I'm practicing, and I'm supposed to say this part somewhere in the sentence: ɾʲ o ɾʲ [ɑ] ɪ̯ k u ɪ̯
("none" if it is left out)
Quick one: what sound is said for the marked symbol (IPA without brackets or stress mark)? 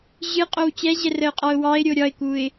ɒ